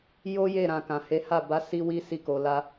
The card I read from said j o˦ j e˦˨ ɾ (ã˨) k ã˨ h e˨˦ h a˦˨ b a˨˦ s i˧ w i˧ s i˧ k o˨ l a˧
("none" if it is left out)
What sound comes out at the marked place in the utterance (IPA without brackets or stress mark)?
ã˨